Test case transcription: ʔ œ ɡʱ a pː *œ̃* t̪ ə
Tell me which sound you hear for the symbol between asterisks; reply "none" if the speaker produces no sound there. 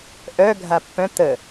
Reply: œ̃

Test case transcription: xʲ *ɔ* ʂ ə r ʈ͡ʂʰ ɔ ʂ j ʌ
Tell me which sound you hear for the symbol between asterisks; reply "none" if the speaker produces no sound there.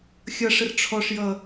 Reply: ʌ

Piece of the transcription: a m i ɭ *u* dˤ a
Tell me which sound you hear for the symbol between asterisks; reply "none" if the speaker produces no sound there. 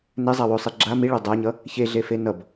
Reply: o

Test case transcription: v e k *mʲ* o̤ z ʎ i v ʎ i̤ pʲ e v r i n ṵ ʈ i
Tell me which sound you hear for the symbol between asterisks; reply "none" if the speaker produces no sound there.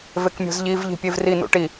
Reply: mʲ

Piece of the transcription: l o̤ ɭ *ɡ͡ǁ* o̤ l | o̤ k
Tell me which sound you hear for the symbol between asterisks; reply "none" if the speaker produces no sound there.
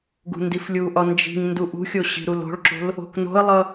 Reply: ǁ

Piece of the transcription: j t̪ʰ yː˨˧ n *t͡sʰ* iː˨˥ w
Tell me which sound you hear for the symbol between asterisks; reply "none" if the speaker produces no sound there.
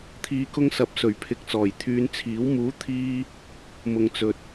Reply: t͡sʰ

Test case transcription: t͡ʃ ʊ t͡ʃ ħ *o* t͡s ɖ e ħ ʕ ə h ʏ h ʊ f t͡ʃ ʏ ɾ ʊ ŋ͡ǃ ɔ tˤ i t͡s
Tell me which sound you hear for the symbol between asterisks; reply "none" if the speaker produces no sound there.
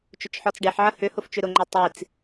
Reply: ɔ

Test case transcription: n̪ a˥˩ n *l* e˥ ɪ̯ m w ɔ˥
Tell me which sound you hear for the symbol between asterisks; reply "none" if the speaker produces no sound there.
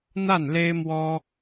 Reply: l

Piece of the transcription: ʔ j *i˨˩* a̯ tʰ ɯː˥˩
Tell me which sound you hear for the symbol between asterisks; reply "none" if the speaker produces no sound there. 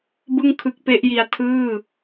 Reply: i˧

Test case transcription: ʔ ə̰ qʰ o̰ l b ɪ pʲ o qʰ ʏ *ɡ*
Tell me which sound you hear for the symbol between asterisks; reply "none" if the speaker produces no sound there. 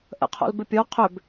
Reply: b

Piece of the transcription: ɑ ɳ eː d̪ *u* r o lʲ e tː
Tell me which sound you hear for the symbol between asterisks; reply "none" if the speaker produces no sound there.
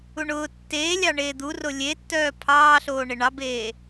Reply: u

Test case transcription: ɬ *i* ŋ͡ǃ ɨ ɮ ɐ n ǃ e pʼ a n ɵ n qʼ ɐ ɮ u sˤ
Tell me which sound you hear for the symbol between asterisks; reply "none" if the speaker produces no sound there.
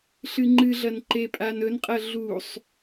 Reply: ɨ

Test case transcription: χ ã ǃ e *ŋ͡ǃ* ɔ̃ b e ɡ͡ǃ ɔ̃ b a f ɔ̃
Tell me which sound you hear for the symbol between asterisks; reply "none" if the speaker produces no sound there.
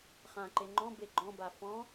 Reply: ŋ͡ǃ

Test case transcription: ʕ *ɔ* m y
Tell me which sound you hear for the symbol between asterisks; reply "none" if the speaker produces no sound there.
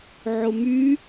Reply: ʊ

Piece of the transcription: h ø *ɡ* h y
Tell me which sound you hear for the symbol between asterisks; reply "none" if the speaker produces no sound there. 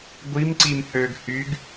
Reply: ɡ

